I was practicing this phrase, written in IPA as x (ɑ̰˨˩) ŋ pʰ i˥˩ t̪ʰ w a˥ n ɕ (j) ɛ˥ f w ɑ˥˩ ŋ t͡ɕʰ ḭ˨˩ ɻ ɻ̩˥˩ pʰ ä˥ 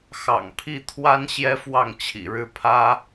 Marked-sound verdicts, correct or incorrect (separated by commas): correct, correct